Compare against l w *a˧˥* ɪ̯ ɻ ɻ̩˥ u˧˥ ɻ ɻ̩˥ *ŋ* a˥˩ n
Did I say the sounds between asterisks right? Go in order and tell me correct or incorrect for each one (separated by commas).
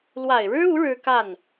incorrect, incorrect